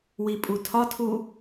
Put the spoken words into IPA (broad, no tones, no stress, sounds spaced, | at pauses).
w i pʼ u tʰ ɒ tʰ u